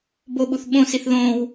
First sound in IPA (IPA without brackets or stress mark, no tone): b